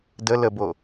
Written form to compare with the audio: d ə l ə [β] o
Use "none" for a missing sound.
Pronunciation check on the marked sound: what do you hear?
b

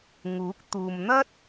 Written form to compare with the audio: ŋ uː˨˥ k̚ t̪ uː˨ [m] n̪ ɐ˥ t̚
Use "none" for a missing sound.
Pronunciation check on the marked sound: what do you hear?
m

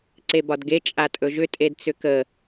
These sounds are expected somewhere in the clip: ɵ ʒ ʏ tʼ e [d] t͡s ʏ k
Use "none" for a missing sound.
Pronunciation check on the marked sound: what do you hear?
d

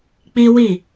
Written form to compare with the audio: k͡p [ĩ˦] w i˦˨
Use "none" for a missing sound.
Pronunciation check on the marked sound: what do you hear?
i˦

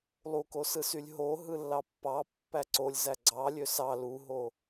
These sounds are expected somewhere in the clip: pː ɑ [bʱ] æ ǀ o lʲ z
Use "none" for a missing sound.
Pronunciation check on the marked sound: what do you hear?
pː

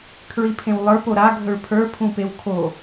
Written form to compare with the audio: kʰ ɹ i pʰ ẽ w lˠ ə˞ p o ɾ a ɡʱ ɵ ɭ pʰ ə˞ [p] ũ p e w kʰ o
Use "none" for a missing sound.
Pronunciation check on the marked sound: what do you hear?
pʰ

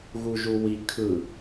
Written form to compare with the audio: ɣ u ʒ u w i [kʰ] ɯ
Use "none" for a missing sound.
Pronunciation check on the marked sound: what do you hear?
kʰ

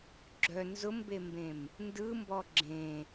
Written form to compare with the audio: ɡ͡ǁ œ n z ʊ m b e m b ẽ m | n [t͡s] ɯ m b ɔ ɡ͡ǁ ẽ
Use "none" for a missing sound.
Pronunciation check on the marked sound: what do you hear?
d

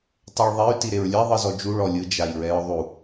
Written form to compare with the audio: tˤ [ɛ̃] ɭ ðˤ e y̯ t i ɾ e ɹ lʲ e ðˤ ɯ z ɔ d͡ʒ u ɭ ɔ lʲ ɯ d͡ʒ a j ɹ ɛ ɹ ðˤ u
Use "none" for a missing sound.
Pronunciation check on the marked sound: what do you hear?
ɛ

